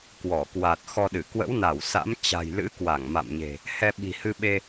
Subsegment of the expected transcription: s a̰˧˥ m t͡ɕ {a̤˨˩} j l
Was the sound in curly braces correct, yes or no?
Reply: yes